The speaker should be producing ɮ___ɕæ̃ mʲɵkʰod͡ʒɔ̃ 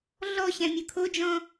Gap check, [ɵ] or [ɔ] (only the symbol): ɔ